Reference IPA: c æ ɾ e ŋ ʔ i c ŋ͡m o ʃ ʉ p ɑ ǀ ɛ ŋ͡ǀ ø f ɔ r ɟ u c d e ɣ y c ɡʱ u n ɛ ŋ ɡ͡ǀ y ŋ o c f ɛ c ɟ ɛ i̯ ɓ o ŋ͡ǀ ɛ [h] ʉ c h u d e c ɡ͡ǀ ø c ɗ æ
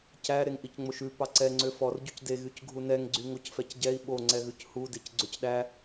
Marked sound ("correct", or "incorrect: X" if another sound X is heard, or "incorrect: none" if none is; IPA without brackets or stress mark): incorrect: ɣ